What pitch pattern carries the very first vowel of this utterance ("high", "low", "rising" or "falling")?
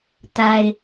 high